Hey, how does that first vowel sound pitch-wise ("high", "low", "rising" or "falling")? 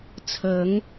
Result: rising